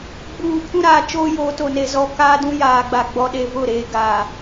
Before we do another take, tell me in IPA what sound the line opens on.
ɡ͡b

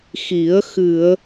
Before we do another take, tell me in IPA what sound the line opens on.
x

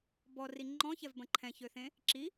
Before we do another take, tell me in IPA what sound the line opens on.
b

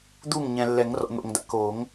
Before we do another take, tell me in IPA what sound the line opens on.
d̪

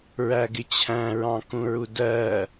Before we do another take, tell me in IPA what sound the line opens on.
ɹ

